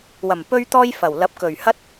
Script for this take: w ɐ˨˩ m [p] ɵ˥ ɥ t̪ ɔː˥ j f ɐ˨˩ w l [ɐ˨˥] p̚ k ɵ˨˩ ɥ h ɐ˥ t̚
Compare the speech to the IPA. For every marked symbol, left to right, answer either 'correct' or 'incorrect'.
correct, correct

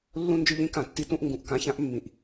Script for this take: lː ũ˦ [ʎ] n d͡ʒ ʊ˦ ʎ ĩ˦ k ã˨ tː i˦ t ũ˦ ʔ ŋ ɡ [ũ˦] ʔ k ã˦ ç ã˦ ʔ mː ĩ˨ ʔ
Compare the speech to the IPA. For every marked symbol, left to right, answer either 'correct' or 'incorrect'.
incorrect, incorrect

